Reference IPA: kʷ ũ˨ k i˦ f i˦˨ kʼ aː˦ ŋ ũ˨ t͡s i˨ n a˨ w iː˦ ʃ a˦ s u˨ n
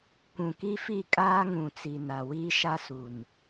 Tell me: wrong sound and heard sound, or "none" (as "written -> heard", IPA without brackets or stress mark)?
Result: none